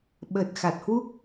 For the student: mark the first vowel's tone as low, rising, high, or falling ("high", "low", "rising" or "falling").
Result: low